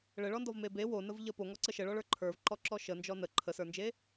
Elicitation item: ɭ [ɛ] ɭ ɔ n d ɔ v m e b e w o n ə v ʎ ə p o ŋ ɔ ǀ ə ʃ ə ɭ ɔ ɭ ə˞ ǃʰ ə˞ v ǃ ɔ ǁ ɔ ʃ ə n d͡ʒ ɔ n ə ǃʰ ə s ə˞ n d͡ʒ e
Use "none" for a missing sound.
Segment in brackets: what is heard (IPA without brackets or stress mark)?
ə